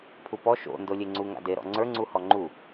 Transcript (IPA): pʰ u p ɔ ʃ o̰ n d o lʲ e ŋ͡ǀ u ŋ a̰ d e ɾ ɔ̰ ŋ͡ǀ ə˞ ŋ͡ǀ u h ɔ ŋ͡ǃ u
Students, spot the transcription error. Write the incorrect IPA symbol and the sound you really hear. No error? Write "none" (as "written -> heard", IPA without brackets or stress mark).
none